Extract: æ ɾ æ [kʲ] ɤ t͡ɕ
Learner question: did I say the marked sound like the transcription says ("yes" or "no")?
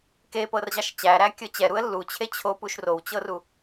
yes